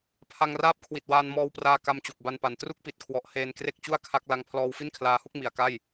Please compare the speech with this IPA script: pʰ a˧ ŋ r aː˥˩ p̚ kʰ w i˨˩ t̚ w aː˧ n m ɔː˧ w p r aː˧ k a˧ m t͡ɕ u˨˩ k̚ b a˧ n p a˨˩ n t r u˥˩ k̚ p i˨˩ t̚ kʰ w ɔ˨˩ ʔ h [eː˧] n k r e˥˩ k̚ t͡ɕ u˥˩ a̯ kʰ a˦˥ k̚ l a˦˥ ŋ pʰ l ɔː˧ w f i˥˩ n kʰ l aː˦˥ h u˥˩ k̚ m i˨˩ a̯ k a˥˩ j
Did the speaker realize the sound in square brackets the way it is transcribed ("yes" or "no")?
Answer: yes